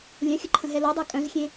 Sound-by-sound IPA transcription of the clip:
lʲ œ̃ xʲ ə ǃʰ ə̃ ɦ ɛ l o dˤ ø kʼ œ̃ z xʲ ẽ

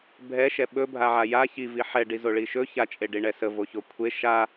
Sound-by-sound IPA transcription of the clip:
bʱ ɛ ʃ ɛ ɓ ɵ bʱ a ʕ a j a ç i v i ħ ɛ ɖ i z o ɭ i ʃ ɵ ç a t͡ʃʼ e ɖ i ɳ ɛ s ə v o ç o kʷʰ e ʃ a

